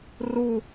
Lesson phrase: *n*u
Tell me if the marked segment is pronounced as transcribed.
no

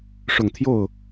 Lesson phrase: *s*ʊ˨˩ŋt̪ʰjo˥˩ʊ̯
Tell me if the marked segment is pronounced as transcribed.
no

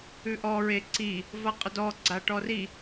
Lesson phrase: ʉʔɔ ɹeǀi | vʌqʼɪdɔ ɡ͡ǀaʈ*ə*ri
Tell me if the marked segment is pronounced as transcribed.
no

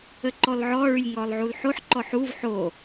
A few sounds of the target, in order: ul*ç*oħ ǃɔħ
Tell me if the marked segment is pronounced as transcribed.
no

